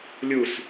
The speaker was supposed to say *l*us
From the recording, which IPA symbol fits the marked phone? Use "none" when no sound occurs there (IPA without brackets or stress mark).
lʲ